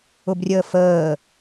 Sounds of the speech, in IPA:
ʊbrʲəːfəː

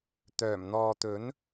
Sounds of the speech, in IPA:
t̪œː˨˩mn̪ɔː˨t̪ɵ˨˥n

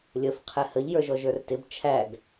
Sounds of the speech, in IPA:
lʲəf qʰɛhəʎ jə˞ʒɔʒə˞rtɪb t͡ʃʰæɡ

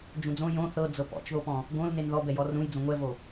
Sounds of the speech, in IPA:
d͡ʒũd͡zõ jõ θɤ d͡zɤpɔ̰t͡ʃðopɔ̃ | ɡõl nenðɔbɛjɔ rũj d͡zõŋʷɛvo

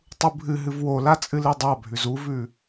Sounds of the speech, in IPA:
tˤubʱɨɦɨv wola t͡sʼɨledˤabʱʉz uvʉ

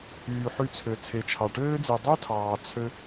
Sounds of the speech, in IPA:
yː˩ħy˨t͡sʰø˩ t͡sʰe˩t͡ʃʰɑ˩ʈøː˦d͡ze˨ dˤy˥tʰɑː˨ t͡sʰø˦

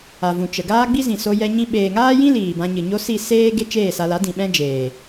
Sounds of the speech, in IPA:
a˨vũ˨t͡ʃə˨ ɡaː˦ɡ͡bi˦zĩ˨so˧ jɛ˧ɲĩ˧ ɓeː˨ŋaː˦jĩ˦ liː˨bã˧ɲɨ˨ɲo˦ si˦˨ seː˦ ɡe˦t͡ʃeː˦˨sa˧la˨˦ dĩ˨ɓɛ̃˦d͡ʒeː˨

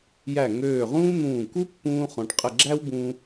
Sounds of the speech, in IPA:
jæ˧˩ ŋøː˧˩ʁũː˥n̪ũː˧˩ ku˥pːũː˧χɔ̃˩˧ʈ qʼə˧˩ɡ͡ǁæ˥wbũ˧

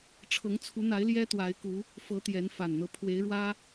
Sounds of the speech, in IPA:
ʈ͡ʂʰɤ˨˦ŋt͡sʰu˨˦n̪a˨˦ɪ̯ ljɛ˦t̪wa˨˦ɪ̯ku˨˦ | fɤ˨˦ t̪jɛ˨˦nfa˨˩nn̪ɤ˦ pʰwe˨˦ɪ̯ɻwä˦

